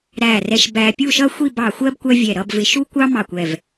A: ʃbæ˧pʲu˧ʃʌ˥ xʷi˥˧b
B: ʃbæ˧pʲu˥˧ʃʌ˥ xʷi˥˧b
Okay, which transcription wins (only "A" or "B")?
B